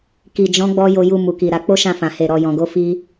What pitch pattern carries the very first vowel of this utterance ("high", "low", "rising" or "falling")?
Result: low